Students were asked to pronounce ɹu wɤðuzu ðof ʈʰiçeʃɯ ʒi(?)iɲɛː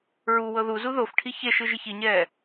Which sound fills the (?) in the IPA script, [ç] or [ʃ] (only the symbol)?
ç